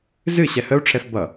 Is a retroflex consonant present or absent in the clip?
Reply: present